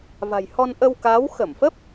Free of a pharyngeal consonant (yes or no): yes